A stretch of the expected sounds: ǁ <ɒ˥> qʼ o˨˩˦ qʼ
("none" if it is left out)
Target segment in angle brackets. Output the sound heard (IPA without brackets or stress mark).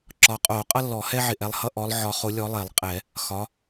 ɒ˨˦